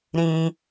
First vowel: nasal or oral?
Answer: nasal